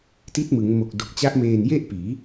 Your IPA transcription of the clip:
ti˦˥t̚mɯ˩˦ŋmo˨˩k̚ do˨˩k̚t͡ɕa˦˥ʔmeː˨˩n je˥˩ʔpiː˩˦

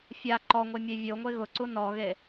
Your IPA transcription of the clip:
fʲa ǃɔŋʷemʲe vʲoŋʷe ɣʊǀu nɔɣe

